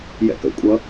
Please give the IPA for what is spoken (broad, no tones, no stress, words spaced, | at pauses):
jɛ̰kə̰ kʷʼʌ